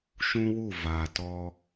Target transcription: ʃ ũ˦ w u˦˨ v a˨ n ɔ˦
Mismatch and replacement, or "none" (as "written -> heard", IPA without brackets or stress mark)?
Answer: n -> t